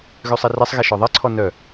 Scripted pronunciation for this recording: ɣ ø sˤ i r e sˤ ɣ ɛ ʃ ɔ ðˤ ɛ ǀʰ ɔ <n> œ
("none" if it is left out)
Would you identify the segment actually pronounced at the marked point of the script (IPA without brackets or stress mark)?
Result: n